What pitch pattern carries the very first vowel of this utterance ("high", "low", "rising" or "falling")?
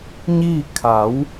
falling